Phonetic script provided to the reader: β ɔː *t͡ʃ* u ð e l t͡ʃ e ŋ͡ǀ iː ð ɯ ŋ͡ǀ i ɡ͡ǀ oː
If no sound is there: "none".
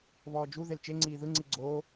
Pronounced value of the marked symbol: d͡ʒ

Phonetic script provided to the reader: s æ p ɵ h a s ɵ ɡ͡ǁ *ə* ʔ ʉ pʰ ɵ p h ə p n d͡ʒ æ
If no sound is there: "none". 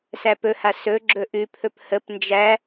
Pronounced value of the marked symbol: ɵ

